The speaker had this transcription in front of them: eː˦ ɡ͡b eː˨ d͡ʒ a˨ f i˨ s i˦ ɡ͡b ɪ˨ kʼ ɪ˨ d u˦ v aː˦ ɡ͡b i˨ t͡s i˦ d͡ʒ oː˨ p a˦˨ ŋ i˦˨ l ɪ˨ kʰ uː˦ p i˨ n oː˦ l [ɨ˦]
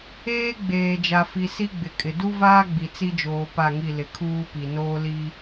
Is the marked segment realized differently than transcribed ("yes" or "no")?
yes